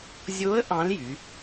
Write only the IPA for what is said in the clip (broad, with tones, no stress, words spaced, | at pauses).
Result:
zʲo˧˥ə̯ ʔɑ̃˧˥ljy˩˧